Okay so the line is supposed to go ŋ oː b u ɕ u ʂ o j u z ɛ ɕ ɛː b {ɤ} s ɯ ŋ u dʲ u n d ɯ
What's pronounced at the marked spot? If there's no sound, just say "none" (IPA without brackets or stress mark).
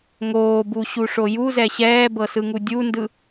ɤ